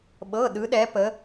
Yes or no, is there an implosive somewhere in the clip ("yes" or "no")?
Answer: yes